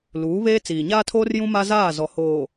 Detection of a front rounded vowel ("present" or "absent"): absent